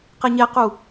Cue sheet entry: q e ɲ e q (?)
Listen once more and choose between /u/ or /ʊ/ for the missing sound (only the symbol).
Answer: u